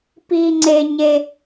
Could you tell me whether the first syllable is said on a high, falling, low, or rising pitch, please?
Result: high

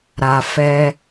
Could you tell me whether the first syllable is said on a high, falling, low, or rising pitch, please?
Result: low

